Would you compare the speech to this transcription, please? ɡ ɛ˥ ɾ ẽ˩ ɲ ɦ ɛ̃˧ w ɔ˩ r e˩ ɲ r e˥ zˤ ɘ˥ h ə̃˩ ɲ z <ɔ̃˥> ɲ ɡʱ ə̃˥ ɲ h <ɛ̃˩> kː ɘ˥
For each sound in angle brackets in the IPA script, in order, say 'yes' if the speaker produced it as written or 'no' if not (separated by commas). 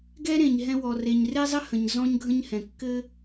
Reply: yes, yes